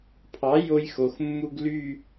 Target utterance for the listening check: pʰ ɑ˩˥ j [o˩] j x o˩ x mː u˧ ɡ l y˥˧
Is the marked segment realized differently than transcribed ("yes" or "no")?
yes